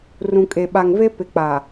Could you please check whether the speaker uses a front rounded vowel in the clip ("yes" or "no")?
no